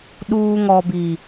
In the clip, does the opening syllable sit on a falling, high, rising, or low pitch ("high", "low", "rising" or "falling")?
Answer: high